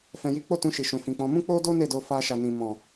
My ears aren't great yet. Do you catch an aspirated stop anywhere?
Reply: no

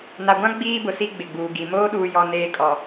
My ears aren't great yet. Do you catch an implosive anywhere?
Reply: yes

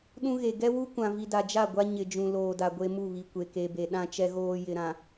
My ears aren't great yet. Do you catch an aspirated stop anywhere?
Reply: no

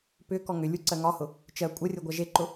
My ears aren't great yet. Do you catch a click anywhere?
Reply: yes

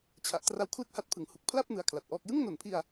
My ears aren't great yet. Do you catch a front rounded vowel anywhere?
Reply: no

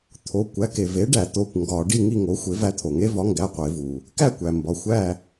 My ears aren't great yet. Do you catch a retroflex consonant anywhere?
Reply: yes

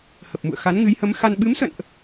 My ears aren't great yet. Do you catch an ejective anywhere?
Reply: no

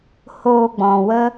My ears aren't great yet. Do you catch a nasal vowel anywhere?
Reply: yes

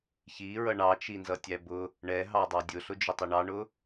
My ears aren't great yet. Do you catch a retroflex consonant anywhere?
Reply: yes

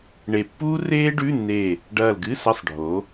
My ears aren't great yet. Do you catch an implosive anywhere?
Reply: no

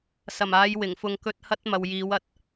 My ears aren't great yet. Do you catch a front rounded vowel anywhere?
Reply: no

